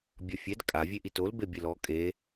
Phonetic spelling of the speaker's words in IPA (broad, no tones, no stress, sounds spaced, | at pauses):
bʲ ɔ fʲ ɛ d kʼ a vʲ e ʔ i t o l b e bʲ e l ɔ kʼ e